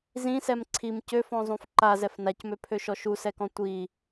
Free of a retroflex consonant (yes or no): yes